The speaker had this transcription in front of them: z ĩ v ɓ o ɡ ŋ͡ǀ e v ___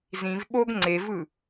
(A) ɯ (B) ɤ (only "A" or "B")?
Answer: A